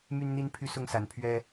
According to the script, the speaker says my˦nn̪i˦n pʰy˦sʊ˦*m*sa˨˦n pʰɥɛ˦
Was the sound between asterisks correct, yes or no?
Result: no